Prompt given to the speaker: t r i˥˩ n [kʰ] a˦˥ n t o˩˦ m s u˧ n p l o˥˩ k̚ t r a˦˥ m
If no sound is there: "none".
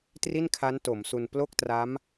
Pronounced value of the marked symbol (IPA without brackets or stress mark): kʰ